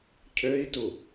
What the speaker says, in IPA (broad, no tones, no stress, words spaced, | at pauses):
cʰøi̯tu